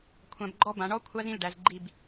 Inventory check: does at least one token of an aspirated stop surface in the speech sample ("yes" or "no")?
yes